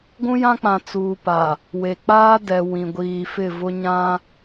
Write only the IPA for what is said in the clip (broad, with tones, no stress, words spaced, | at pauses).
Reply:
ɡʷũ˦jã˦k͡pã˨ t͡suː˨pa˨ | we˨k͡paː˦ dɛ˨ wĩ˨ɡʷiː˨fɪ˦˨vʊ˦ ɲã˦